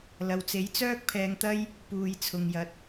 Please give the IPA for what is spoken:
l ɐ˨ w t͡s e˨˥ j t͡s œː˥ k̚ pʰ ɛː˧ ŋ t̪ ɐ˥ j | p uː˨ j t͡sʰ ʊ˨ ŋ j ɐ˨˥ t̚

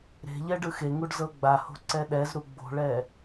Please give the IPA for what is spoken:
ɾ e̤ ʎ ɛ ɖ ɯ x e ŋ u ɖ z ɤ ɡ͡b a h o̤ ǀ ɛ ɗ ɛ z ɾ u ɡ͡b o̤ ɭ ɛ

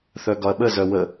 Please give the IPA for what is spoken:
θ œ ɡ ɒ ɐ̯ ɓ ə z œ w ə

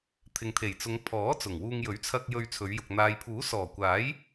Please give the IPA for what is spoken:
t̪ʰ ɪ˨ ŋ t̪ʰ e˨˩ j t͡s ʊ˨˧ ŋ pʰ ɔː˨˥ t͡s ʊ˨˩ ŋ w uː˧ ŋ j ɵ˨˥ ɥ t͡sʰ ɐ˧ k̚ j ɵ˧ ɥ t͡sʰ ɵ˨˧ ɥ j ʊ˨ k̚ n̪ aː˨ j pʰ uː˨˥ s ɔː˨˩ kʷ aː˨˥ j

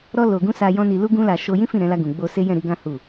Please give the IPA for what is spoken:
ɾ ɔ˧ l o˨ ɡ ũ˧ s a˧ j ɔ̃˦ n i˧ l u˦ ɡ ũ˦ l a˧ ʃ o˧ j ĩ˦ f ĩ˦˨ ɾ ɛ̃˨˦ l a˧ ɡ ũ˨ ɡ͡b o˧ s e˦ j ɛ̃˦˨ ɾ i˧ ɡ ã˦ h u˦˨

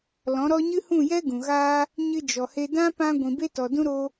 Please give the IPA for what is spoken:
l ɔ̃˨˦ ɾ ɔ˦ ɲ ɨ˦ h ũ˦˨ j ɛ˦ ɡ ũ˨ ɣ aː˦ | ɲ ɨ˧ d͡ʒ ɔ˨ h e˧ d ã˦ p ã˧ ɡʷ ĩ˨ b e˦ t ɔ˨ d ũ˦ ɾ o˦

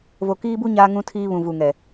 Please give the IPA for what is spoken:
v o˨ k iː˦ b u˦ ɲ aː˦ ŋ ũ˦ tʰ iː˦ β ũ˨ v u˨ ŋ ɛ˨

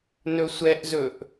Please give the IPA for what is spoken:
n ɵ sʷ ɛ ʔ z ɵ ʔ

